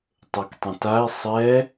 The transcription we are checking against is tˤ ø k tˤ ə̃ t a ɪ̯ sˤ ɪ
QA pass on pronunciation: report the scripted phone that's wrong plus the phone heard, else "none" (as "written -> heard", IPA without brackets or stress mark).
ɪ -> ɛ